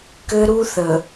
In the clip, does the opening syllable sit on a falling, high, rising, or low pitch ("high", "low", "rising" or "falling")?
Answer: high